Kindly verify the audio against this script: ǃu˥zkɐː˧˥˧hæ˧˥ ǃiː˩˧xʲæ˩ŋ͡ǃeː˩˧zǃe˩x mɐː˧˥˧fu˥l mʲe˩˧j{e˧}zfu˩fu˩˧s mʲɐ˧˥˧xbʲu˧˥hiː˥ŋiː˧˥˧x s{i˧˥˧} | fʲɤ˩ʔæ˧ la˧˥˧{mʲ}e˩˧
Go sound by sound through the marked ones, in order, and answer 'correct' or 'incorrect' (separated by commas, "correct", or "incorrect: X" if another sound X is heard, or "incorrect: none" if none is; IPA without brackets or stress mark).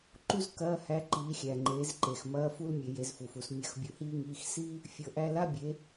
incorrect: e˩˧, incorrect: i˥, incorrect: bʲ